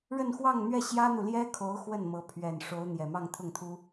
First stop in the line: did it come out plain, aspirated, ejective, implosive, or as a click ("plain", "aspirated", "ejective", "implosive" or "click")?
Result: aspirated